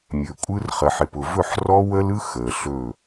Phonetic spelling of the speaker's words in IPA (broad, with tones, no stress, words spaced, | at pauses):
mʲɵ˨kʷʼɯ˦rχə˨ħ ɪ˨pʊ˨vɵ˦˨ħ rɔ˦wə˦lɯ˦ xə˨ɬɵ˦˨